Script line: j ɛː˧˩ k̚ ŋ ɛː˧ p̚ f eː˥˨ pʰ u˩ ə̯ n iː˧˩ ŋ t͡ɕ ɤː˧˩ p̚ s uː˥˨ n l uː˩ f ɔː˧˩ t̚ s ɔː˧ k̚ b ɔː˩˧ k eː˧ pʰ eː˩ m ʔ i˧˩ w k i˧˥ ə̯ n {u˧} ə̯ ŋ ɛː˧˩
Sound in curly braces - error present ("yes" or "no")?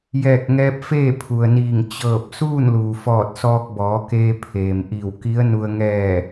no